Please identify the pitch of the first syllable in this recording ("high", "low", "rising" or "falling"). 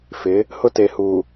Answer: rising